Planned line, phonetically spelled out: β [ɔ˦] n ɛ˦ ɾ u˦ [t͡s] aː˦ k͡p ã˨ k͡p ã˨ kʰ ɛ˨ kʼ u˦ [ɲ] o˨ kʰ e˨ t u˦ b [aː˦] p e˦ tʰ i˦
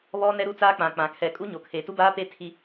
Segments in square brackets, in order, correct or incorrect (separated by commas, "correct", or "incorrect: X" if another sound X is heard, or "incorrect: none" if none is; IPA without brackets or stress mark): correct, correct, correct, correct